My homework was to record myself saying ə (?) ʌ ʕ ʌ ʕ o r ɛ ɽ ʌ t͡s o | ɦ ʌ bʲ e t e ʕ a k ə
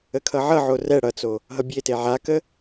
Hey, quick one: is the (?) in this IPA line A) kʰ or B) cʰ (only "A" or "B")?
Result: A